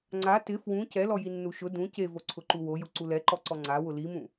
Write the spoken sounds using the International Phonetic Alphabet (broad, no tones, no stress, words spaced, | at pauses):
ŋ͡ǀa tɪ fwũ cɛlɔjinːu ʃʊ dũ cevoǀʰʊǃu wojʊǀu lɛǃɔǀɔ ŋ͡ǀawʊ limũ